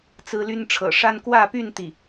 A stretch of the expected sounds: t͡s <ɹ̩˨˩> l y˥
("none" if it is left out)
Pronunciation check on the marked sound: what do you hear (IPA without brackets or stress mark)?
ɹ̩˥